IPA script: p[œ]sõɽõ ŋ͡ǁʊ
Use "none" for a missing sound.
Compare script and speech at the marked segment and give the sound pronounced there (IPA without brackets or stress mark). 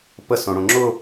ə